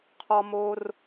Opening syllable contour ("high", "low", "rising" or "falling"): high